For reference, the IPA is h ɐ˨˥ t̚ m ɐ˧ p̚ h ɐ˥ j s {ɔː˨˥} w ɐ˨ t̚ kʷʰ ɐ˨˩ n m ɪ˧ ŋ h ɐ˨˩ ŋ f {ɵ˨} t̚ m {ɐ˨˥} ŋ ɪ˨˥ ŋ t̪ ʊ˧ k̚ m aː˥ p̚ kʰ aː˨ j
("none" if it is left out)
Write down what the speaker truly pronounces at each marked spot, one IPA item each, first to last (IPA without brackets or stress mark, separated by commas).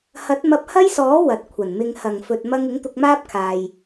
ɔː˨˥, ɵ˧, ɐ˥